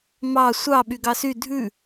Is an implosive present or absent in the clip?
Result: present